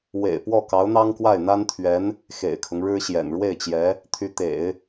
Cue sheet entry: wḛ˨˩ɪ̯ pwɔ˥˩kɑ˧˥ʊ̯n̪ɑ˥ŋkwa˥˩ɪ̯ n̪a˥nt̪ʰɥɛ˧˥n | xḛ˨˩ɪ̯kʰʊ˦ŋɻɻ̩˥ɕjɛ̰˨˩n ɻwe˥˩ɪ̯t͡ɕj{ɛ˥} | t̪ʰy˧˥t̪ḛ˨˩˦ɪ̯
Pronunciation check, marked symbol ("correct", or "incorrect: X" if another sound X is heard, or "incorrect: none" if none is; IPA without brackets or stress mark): incorrect: ɛ˧˥